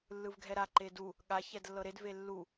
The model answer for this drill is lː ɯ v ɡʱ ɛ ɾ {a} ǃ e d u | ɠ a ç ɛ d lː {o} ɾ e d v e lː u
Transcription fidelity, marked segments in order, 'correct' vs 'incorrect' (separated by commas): correct, incorrect